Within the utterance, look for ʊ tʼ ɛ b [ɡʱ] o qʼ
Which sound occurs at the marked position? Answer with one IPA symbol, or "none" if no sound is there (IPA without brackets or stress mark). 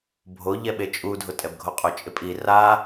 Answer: ɡʱ